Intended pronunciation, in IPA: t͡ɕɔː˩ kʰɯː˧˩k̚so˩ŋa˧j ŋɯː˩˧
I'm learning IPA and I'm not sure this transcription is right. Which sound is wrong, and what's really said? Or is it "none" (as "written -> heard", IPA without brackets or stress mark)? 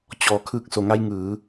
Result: none